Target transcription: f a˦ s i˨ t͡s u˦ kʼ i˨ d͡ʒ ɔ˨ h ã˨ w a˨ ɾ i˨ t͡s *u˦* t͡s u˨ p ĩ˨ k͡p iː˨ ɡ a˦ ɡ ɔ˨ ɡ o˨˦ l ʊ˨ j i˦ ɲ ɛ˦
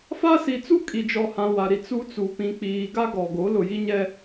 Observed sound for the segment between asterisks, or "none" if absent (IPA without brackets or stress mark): u˦